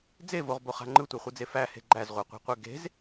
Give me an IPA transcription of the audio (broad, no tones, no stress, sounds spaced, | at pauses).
d͡z e v o ʁ b o χ a̤ ŋ͡ǃ ɯ tʷ a χʷ ɯ d͡z e f æ h e̤ ɡ͡ǃ æ z ʁʷ e qʷ e̤ qʷ e ɡ e̤ z